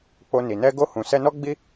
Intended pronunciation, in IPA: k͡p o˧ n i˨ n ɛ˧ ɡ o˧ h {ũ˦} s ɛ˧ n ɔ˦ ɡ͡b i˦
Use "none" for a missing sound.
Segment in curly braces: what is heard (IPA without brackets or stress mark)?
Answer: ũ˨